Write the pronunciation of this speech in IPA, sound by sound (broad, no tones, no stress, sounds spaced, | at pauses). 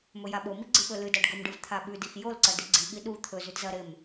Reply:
m ɵ j a ɓ o m i ɡ͡ǀ ɨ ɓ ɵ l ɨ d a ɖ ɡ ɵ m ɖ ɨ v t̪ʰ a ɓ ʉ d i x j o l ǀ ɐ d i ɡ͡ǀ i ɠ i ɗ u t̪ʰ ɵ z ʉ d z ɐ ɾ e m